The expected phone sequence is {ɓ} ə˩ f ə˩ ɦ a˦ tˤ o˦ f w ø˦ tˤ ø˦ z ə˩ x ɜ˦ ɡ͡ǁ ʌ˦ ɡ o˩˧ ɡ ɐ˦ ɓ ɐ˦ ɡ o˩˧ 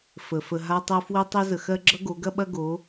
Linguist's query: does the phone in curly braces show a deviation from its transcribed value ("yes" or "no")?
yes